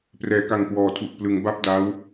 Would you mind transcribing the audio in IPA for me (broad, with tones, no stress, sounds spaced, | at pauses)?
p r ɛː˩˦ k a˨˩ ŋ k w ɔː˩˦ tʰ u˨˩ ʔ p l ɯ˩˦ ŋ b a˥˩ p̚ d a˦˥ w